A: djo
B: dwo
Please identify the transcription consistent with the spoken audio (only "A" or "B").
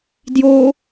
A